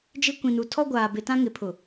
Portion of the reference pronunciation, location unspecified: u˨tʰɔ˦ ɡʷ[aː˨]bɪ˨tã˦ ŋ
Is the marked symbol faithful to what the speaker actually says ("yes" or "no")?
yes